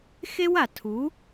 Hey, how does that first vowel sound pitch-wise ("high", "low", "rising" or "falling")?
high